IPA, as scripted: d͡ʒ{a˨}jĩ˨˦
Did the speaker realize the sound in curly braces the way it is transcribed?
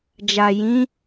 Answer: yes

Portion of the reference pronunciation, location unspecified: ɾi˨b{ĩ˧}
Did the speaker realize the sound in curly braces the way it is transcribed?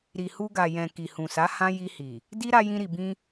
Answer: yes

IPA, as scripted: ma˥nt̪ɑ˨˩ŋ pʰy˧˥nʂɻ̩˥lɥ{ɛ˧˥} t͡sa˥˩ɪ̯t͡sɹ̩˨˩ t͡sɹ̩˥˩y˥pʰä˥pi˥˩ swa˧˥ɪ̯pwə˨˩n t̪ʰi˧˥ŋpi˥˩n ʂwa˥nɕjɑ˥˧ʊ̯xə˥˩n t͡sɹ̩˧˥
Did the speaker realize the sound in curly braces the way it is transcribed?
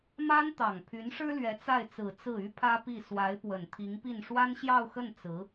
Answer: yes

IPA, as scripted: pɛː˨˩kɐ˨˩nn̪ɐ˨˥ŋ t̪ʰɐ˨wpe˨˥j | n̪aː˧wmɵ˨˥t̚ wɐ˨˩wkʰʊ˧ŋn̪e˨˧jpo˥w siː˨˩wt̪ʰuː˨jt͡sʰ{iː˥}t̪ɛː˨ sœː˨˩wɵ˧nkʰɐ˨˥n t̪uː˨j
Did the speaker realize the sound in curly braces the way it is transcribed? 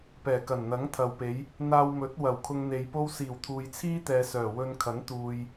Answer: yes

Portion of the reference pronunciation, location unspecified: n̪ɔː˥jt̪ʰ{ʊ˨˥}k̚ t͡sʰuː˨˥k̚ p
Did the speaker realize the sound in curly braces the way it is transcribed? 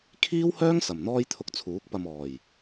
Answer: no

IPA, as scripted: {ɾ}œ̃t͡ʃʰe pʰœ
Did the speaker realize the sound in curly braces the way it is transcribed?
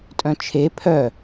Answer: no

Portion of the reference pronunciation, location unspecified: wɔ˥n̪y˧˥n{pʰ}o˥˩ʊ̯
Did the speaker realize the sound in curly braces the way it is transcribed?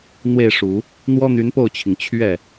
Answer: no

